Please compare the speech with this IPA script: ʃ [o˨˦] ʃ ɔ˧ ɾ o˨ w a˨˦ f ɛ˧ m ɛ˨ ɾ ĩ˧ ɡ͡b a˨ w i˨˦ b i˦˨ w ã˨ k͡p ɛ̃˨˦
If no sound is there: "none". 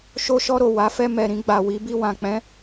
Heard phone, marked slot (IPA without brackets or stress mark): o˧